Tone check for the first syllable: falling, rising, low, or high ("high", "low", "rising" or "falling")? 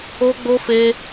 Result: high